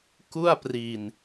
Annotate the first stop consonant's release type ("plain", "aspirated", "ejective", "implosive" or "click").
plain